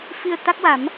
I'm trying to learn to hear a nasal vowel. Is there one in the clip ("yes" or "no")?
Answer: no